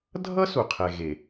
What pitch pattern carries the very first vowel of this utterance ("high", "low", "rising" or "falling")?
high